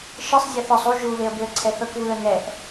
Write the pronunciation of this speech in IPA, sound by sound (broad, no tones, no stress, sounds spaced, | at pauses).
ʃ ɯ sˤ zʲ ɛ θ ɔ sˤ u ʒ u β e ə̯ b e ə̯ ǀʰ ɛ θ ɤ k β ɯ ə̯ n̪ ɛ ʔ